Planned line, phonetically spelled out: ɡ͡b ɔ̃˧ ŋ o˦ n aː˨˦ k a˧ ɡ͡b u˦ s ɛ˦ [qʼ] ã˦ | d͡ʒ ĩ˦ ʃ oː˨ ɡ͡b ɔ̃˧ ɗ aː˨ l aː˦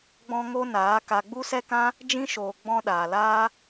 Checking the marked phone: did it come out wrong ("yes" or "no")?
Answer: yes